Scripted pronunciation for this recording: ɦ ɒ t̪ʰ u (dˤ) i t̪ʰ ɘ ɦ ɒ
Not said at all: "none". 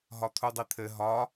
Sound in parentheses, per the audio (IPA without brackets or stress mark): dˤ